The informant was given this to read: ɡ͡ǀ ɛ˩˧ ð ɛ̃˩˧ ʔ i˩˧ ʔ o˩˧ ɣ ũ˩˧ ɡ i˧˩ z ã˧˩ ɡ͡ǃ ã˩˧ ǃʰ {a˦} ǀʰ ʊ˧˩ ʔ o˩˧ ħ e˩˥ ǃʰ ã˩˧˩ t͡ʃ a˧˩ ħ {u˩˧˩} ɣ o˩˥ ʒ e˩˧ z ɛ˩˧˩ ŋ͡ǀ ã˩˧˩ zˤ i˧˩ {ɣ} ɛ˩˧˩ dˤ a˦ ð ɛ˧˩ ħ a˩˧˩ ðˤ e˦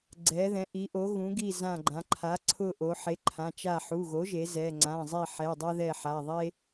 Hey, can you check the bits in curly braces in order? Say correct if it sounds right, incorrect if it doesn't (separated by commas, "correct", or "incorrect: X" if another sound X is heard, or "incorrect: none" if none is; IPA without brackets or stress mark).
incorrect: a˩˥, correct, incorrect: ħ